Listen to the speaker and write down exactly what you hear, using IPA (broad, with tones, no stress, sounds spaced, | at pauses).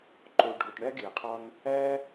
ǃ o˨ ɖʱ o˨ ʈ ɳ æ˦ ɡ e˨ qʰ ɒ˦ n | æ˦